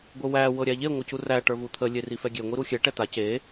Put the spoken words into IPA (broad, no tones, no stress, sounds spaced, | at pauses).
ɡʷ ə w æ w ɤ ɾʲ æ ʎ e ŋʷ ə c u r æ ʈ ə˞ v u t̪ʰ ə lʲ e r i f ɛ ɡʲ e ŋʷ i ɾ u xʲ ɛ ʈ ɛ t̪ a c e